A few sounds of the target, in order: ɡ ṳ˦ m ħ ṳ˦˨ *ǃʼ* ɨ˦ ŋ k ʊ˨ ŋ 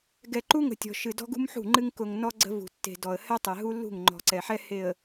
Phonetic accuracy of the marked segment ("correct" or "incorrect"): incorrect